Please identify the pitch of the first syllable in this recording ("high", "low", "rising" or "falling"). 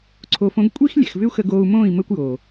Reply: low